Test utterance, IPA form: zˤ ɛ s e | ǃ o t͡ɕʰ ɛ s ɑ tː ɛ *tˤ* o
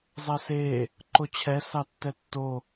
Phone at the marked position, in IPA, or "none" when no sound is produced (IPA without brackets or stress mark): tː